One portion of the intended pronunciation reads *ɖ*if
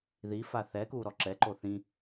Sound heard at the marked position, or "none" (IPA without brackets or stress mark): ð